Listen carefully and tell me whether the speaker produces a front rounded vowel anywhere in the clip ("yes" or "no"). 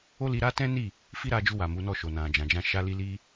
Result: no